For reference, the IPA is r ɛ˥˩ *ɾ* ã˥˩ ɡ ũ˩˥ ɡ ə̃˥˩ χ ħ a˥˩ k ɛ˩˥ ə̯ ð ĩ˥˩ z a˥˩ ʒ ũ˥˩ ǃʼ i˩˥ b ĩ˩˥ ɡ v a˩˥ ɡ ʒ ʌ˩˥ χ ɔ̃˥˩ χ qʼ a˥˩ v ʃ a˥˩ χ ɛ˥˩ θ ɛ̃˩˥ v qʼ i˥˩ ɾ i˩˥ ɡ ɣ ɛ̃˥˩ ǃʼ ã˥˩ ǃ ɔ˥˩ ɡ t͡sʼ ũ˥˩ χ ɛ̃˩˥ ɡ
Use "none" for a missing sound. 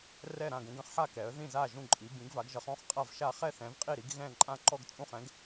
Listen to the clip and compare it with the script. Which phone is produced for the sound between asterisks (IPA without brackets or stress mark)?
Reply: ɾ